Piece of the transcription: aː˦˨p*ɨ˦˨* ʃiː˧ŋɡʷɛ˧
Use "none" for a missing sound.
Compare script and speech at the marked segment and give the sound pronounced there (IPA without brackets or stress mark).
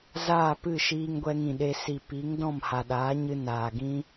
ɨ˦˨